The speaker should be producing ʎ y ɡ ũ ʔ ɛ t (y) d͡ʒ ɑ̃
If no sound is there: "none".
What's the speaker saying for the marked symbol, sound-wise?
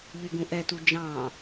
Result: u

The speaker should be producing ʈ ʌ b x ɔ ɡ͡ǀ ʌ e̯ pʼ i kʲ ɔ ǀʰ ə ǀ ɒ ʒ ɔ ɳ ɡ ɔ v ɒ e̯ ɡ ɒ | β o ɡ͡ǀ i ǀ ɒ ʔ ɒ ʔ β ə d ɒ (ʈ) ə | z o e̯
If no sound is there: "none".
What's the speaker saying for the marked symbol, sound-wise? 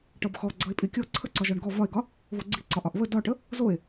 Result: ʈ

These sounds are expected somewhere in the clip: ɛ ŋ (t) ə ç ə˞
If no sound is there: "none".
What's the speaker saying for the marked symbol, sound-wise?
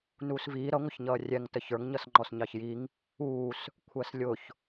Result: t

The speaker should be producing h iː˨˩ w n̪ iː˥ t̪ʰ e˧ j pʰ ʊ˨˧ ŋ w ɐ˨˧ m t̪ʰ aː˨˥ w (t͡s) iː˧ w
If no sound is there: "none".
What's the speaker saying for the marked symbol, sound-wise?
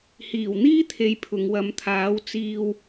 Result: t͡s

